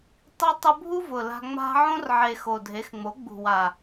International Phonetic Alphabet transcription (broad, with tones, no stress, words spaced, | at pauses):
tˤi˧tˤʊ˧bʱu˦ vʊ˨la̤˧ ŋ͡ma̤˧ʕõ˦rʕe˨ xo˨dʱe˨˦xŋ͡mo˨˦ ɡ͡bṳ˨wa˨